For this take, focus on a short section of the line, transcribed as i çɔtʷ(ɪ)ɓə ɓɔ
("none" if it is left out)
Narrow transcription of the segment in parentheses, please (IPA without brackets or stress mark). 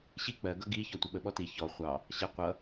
ɪ